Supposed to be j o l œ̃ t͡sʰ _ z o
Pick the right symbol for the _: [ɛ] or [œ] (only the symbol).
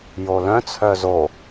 œ